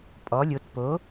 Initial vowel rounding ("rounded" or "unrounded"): rounded